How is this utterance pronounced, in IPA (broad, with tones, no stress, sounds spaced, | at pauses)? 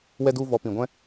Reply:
w ɛ˧ d u˧ v ɔ˨˦ p ĩ˨ ɡʷ ɛ̃˦